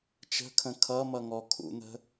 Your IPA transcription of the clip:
t͡ʃ ə̤ kʰ ə̃ kʰ ʌ m ʌ ŋ ɔ kʰ ṵ n̪ ə̤

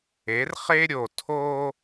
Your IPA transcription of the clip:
e˨˦ r χ e˦ ɾʲ o˨ tʰ o˦

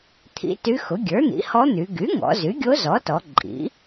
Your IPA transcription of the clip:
t̪ʰ ḭ˧˥ t y˧˥ x ʊ˩˥ ɡʲ ə˞˩˥ n̪ ḭ˩˥ h ɔ˧˥ n̪ y˩˧ ɡ y˩˥ ŋ ɔ̰˩˧ z y˩˥ ɡʲ o˧˥ z ɔ˩˥ t ɔ˩˧ ǃʼ ḭ˩˥

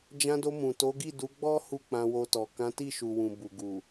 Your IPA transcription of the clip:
d͡ʒ ã˧ d o˧ m ũ˨ t o˨˦ ɡ i˦˨ d u˨˦ ɡ͡b ɔ˦ h u˦˨ k͡p ã˧ w o˧ t ɔ˨ k ã˨˦ t i˦˨ ʃ u˨ w ũ˨ b u˨ ɡ u˨

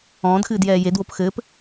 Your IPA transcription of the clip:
ɔ̃ː d x ɨː d j ɛː j e d w o p x ɘː p

